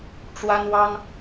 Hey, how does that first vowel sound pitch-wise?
high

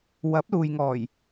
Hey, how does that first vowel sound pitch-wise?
rising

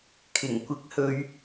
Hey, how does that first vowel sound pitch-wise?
low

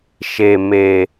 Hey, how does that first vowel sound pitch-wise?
low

